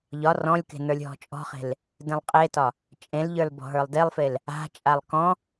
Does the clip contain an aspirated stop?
no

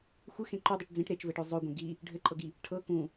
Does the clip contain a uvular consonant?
no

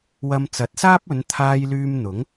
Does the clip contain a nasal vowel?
no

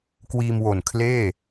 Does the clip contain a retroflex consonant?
no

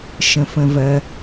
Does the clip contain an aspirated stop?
no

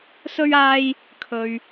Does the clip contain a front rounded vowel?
no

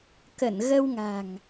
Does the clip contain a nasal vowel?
no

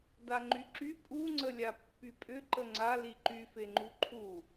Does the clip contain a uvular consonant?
no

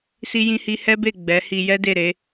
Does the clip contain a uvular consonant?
no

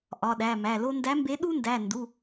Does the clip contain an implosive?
yes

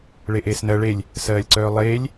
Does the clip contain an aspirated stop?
no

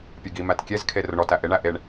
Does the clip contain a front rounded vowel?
no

